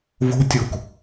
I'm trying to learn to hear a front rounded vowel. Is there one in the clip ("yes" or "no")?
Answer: no